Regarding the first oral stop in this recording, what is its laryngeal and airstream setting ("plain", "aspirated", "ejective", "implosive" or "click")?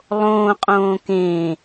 ejective